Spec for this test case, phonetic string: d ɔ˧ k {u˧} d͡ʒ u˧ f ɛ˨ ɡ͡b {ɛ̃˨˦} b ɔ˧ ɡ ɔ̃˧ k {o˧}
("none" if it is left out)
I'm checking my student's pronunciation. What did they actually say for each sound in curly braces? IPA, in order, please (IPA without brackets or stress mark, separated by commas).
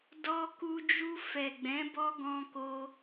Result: u˧, ɛ̃˨˦, o˧